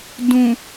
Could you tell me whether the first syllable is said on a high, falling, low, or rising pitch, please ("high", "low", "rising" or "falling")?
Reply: low